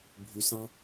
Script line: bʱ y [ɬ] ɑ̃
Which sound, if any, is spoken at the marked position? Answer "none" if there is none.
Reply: s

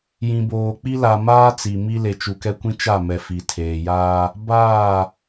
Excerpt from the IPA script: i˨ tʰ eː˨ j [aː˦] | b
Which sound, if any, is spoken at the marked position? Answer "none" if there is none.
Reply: aː˦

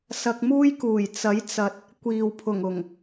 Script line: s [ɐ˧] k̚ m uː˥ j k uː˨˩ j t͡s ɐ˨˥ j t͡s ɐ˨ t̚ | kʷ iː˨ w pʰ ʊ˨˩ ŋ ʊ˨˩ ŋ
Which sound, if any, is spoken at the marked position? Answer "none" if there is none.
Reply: ɐ˧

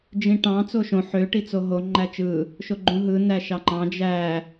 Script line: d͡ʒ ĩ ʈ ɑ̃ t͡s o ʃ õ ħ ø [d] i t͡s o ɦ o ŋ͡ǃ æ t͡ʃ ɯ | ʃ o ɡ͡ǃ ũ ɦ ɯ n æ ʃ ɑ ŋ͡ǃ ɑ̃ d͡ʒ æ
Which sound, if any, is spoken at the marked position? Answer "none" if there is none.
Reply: ʈ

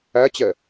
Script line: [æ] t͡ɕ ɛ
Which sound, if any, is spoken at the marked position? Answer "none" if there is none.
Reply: æ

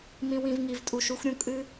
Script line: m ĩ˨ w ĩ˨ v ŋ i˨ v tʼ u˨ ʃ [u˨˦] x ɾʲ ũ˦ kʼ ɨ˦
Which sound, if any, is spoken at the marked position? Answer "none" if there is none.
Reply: u˨˦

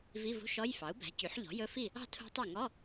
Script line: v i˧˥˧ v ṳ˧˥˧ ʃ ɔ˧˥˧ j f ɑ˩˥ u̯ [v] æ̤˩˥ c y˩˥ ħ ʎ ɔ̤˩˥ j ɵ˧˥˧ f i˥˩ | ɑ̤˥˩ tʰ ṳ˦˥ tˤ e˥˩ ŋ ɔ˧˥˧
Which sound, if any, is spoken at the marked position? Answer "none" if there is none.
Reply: b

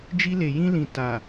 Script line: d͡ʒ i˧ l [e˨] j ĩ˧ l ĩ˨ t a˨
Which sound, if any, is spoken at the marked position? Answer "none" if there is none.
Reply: e˨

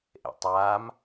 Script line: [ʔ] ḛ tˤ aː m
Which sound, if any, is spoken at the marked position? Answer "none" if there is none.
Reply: ʔ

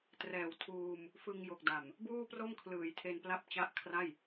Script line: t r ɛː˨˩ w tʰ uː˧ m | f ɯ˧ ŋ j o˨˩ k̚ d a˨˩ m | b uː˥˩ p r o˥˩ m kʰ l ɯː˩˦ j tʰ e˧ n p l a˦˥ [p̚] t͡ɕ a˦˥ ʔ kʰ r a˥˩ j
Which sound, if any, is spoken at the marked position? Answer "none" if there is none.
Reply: p̚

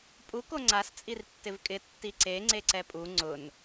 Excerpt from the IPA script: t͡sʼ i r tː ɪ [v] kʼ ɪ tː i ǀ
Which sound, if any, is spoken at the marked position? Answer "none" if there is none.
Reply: v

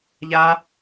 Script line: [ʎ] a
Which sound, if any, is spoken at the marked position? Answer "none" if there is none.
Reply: ʎ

